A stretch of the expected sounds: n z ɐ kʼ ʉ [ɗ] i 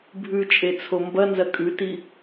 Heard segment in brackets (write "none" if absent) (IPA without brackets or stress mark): t